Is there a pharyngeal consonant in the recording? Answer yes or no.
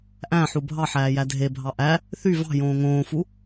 yes